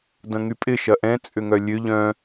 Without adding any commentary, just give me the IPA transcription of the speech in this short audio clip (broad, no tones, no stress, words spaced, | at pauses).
dɐ̃ŋypʼɪ ʃɐʔɛ̃ t͡sʼʏŋœlʲøʎ œ̃